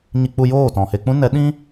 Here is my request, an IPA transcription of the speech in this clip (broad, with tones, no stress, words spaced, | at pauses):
ɲi˧k͡pu˧ joː˦˨tɔ̃˨he˧k͡pũ˦ nɛ˨˦ɗĩ˦